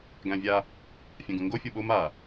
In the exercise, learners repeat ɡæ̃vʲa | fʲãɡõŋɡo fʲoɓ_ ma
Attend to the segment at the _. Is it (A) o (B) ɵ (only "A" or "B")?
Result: A